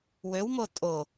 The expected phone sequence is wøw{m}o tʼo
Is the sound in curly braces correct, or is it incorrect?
correct